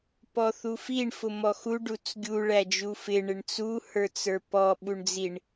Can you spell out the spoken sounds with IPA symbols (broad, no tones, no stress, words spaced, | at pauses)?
pɔθufiɳ fʊmɔxu ɖut͡sɡʲu ɭæd͡ʒufɪ ɳɪɳt͡su hə˞t͡sə˞pɔ ɓuɳd͡ziɳ